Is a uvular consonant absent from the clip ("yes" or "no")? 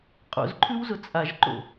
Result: no